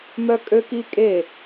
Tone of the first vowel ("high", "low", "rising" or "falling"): high